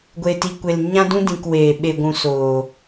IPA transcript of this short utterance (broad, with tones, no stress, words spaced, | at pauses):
ɡʷe˨ti˨kʷe˨l ɲã˦dũ˦dĩ˨k weː˨ ɓe˨ɡʷũ˨ soː˨